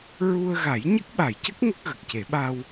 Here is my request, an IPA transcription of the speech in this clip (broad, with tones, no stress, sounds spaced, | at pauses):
ɹ u˧ ə̯ ɣ a˨˩˦ j ɲ ə˦˥ k̚ ɓ a˨˩˨ j c ə˦˥ k̚ ŋ ə˦˥ k̚ ɣ ə˨˩ k̚ c e˨˩˦ ɓ a˧ w